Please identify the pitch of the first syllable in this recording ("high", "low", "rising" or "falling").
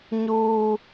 high